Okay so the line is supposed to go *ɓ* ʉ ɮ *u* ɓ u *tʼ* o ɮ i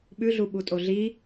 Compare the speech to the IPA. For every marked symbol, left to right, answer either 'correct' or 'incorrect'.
correct, correct, correct

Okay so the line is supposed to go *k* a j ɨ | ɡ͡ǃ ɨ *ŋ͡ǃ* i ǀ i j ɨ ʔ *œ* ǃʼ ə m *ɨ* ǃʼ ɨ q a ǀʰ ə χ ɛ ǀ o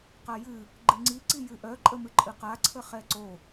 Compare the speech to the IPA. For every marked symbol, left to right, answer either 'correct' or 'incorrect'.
incorrect: q, incorrect: ŋ͡ǀ, correct, correct

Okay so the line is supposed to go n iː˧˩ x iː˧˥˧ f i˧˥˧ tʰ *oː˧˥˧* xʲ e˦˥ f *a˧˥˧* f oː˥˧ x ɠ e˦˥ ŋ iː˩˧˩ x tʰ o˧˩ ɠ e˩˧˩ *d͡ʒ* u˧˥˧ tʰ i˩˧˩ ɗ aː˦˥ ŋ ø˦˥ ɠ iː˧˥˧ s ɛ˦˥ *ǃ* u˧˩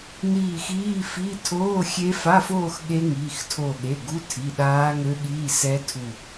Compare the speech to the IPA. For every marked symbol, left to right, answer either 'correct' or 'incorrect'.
correct, correct, incorrect: ɡ, incorrect: tʰ

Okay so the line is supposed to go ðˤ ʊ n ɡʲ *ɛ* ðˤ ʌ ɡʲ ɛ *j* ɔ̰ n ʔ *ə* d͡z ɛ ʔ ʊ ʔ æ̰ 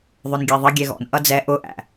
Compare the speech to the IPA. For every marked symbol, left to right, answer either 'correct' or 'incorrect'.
correct, incorrect: ɣ, incorrect: ʌ

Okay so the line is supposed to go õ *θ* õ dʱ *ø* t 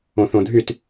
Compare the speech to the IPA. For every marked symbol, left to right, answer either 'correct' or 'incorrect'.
correct, incorrect: y

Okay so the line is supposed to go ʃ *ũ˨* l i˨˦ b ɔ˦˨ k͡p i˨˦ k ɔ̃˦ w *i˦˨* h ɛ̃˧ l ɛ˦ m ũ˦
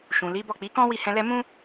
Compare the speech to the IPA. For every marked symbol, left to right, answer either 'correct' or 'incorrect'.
correct, correct

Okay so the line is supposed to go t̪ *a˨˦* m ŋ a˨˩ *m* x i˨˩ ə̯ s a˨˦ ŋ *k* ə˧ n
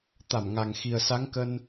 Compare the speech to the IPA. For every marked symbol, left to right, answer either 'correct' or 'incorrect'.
incorrect: a˧˩, incorrect: ŋ, correct

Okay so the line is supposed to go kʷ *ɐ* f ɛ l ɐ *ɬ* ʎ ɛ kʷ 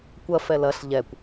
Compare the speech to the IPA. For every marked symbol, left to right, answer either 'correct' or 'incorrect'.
correct, correct

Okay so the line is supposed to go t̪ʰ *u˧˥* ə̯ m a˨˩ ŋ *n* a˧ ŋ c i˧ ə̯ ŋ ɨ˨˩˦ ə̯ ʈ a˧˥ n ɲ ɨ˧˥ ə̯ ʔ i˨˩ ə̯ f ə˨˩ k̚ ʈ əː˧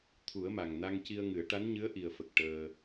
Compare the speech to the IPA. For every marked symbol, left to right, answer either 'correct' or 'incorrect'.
incorrect: u˨˩˦, correct

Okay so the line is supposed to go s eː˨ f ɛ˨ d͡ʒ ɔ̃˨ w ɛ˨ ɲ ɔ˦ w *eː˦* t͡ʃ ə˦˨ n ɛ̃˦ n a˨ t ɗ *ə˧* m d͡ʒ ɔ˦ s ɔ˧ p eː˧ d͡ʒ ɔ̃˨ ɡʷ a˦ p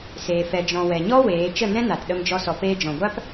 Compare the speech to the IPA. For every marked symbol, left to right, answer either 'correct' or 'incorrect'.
incorrect: eː˨˦, correct

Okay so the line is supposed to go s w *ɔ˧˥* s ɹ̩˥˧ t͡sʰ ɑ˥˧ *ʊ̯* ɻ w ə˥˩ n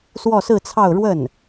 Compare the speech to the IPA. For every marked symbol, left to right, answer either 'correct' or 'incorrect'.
incorrect: ɔ˥˧, correct

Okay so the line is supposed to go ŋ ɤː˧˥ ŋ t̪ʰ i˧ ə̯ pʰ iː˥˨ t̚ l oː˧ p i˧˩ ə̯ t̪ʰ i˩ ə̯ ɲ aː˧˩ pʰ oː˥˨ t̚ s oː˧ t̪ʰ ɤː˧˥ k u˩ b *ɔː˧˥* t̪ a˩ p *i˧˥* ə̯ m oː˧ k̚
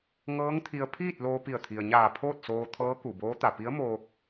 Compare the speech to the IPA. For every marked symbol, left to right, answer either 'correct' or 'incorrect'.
incorrect: oː˧˥, correct

